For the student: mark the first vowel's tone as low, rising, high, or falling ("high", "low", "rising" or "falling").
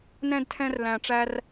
high